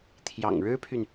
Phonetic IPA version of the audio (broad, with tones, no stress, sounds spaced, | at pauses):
t̪ʰ j ɑ̰˨˩ ŋ ɻ ɻ̩˥ pʰ y˨ n